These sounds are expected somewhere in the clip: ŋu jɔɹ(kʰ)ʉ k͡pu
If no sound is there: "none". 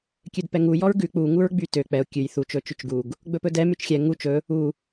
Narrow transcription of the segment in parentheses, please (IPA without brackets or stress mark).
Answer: ɡ